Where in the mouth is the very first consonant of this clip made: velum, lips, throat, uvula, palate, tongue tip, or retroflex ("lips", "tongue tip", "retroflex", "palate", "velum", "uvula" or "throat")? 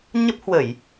palate